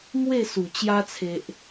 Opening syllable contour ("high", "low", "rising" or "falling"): falling